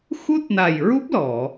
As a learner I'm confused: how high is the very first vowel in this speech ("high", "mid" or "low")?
high